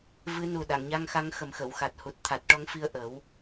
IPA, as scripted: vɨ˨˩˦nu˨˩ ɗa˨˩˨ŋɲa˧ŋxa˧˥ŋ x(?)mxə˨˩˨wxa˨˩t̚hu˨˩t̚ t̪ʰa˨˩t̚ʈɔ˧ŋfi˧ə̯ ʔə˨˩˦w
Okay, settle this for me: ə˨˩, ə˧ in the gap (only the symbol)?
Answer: ə˨˩